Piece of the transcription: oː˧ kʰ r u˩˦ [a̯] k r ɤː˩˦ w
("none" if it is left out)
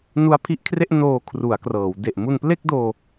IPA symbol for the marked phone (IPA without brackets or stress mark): a̯